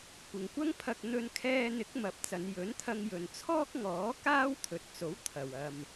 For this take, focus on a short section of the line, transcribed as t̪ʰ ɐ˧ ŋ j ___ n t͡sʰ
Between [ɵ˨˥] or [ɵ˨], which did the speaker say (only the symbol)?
ɵ˨